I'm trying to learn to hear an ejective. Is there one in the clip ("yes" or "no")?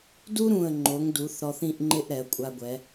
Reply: yes